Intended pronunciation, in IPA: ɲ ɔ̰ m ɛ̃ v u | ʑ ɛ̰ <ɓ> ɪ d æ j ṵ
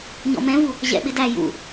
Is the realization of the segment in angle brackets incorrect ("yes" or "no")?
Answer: no